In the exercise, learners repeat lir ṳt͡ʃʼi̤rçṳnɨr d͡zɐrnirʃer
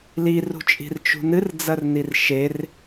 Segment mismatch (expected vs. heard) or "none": ç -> t͡ʃ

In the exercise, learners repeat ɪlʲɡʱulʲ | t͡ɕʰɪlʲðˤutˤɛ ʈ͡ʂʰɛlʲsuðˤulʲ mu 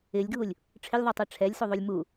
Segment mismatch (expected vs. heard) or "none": t͡ɕʰ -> ʈ͡ʂʰ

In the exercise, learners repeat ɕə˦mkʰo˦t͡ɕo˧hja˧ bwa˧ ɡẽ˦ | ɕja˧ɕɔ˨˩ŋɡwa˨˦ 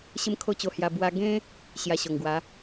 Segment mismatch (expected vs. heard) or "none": none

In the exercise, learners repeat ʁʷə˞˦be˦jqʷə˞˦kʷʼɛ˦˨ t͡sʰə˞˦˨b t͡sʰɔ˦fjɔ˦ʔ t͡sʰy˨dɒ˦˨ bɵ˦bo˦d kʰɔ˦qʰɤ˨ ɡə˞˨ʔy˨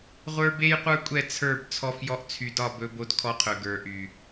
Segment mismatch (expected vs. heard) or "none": ɤ˨ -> ɵ˨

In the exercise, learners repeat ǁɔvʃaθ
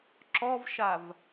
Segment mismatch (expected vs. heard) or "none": θ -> v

